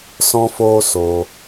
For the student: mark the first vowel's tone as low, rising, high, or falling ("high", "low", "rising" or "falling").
high